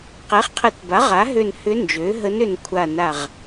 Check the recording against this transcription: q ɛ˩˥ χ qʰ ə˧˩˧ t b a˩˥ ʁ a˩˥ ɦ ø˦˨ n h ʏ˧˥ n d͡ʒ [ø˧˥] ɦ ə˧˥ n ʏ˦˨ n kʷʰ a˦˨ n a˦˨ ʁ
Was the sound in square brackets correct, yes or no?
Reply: no